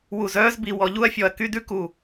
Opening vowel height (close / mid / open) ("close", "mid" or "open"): close